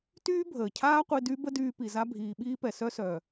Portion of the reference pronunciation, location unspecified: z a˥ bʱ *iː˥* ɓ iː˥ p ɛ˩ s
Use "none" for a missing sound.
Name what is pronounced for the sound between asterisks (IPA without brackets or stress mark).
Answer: iː˩˧